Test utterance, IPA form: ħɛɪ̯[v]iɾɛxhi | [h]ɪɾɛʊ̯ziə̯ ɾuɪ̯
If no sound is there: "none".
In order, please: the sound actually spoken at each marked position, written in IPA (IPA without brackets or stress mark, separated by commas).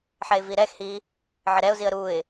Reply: v, ʕ